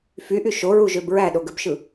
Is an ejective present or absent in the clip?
absent